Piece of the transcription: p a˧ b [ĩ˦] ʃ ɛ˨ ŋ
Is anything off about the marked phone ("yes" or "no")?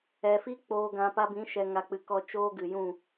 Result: yes